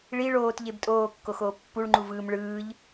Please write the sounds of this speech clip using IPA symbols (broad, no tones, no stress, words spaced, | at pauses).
ɭi ɭoːtʎeb tʼoːkːoxoː pːuɭŋ͡ǃuvɯːm ɭɯːʎ